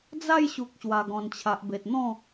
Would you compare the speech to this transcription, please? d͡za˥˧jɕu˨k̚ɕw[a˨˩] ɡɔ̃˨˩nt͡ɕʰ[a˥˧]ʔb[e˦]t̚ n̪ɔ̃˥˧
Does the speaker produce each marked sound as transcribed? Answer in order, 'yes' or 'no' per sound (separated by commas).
yes, no, no